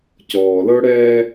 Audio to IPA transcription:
c ɔː˨ l ɤ˦ ɽ ɛː˦

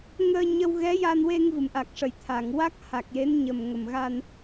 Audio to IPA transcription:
ŋ əː˧ ɲ ə˧ w ɣ ɛ˧˥ j a˧ n w e˧ ŋ v ɨ˨˩˨ m ʔ a˨˩ k̚ ʂ ə˨˩˨ j t̪ʰ a˨˩˨ ŋ w a˦˥ k̚ h a˨˩ k̚ j e˧˥ n ɲ ə˨˩ m ŋ ə˨˩ m ɣ a˧ n

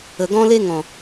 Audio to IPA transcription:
ə˨ ɡ ɔ̃˦ l e˦ ŋ ɔ̃˨

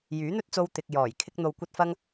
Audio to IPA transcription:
j yː˨˥ n̪ ɵ˥ t̚ t͡s o˧ w t̪ ɪ˨ k̚ j ɔː˨˩ j kʰ ɪ˧ k̚ n̪ o˨ w kʷ ɐ˧ t̚ f ɐ˧ ŋ

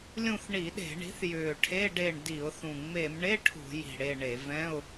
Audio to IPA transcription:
lʲ ũ˦˨ θ ɳ i˧˩˧ ɗ e̤˧˩˧ ɳ i̤˩˥ θ j ʏː˨˩ ʈʰ e˧˥˧ ɖ e˦˨ ɳ d i˧˩˧ ʊ̯ θ ũ˨˩ ŋ͡m e˧˩˧ m ɳ e˧˥˧ ʈʰ ṳ˧˩˧ j i̤˨˩ ɽ e˦˨ ɳ e˧˩˧ v ɛ̃˧˥˧ ʊ̯

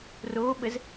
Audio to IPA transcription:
r o ɓ ə z

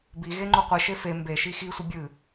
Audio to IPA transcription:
b i ɣ e ŋ͡ǃ u qʷ ɨ ʃ e f e m b e ʃ i x i sʷ ɪ bʲ ɨ

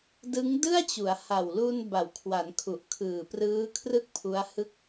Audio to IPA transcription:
d ɯ˦˥ ŋ d ɯ˥˩ a̯ t͡ɕ u˩˦ a̯ h a˨˩ w l u˧ n b a˨˩ w kʰ w a˩˦ n kʰ u˨˩ ʔ kʰ ɯː˨˩ p r ɯː˦˥ kʰ r ɯ˥˩ k̚ pʰ u˦˥ a̯ h ɯ˥˩ k̚

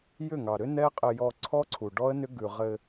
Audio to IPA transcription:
j ʏ˦˨ ŋ ɑ˨ ɾ ʏ˦ n ɛ˦ qʼ ɘ˧ j ɔ˧ ǀʰ ɔ˦ ǀʰ u˨ ɖ ɔ˦ ə̯ n ʏ˦ ɡ ʉ˨ ʁ ɘ˧

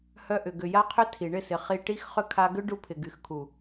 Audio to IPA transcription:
h œ˧ ʔ ʏ˨ ɡ ʏ˨ j a˧ qʰ ʏ˧ tʰ i˨ ɳ ɪ˦˨ s ɪ˨ χ i˨ ʈ i˧ x χ ʏ˧ kʰ a˧ ɡ ʏ˦ ɖ u˧ pʰ ɪ˨ ɡ y˨ x kʰ u˨

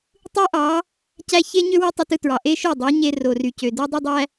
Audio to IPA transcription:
tˤ ɯ˦ ʔ ɑ˨˦ | c æ˧ ç e˦ ɲ ø˦ w ɯ˦ tˤ y˧ t ɯ˧ t ɹ ɑ˨ ʔ e˦ ʃ o˦˨ dˤ o˨˦ ɲ e˧ r o˨ r y˨ c ø˨ d o˦ dˤ ø˦ dˤ æ˦

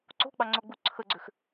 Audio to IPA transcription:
ǀ o̤ ɡ͡b ɑ ŋ͡ǀ o ɡ͡b u ǀʰ ə ɡ͡ǀ ʏ x

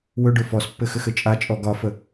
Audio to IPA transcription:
w ɵ ɖ ɵ f ɔ s pː ɘ x ɘ x ɘ t͡ʃʼ a t͡ʃʼ ɔ ɡ ɒ f ə

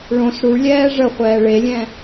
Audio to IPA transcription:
ɭ õ s ɽ u ɭ lʲ ɛː ʐ ə χʷ ɛː ɭ e lʲ ɛ̃

